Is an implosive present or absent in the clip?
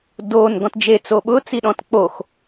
present